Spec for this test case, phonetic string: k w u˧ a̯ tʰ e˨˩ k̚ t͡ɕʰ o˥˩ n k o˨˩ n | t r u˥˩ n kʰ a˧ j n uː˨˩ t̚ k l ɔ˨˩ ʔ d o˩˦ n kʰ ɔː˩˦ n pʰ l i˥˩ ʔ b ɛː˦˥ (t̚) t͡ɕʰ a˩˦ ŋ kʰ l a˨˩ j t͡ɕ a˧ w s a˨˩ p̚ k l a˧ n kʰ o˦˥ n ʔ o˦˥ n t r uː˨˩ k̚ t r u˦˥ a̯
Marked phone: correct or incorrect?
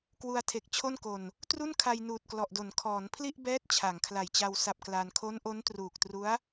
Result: correct